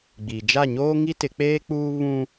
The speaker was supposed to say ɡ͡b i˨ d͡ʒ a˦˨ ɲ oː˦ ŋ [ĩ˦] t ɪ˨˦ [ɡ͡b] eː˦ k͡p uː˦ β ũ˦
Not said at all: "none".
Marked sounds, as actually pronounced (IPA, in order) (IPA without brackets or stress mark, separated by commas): i˦, k͡p